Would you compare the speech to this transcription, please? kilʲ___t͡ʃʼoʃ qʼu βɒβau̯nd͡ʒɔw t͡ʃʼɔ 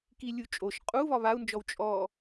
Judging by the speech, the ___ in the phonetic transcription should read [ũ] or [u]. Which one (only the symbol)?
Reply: u